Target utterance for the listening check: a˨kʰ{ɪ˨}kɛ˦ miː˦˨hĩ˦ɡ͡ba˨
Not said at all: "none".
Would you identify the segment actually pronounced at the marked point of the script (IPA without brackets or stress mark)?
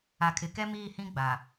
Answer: ɪ˨